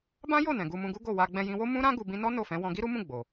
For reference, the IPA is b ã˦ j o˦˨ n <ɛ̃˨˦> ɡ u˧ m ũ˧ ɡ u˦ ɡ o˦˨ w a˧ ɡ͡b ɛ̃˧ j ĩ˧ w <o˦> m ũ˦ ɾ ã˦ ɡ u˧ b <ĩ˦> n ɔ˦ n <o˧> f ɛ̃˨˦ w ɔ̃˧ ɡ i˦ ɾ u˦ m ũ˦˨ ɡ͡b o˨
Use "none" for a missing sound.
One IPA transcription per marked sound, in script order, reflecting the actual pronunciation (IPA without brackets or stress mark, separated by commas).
ɛ̃˨, o˦, ĩ˦, o˦˨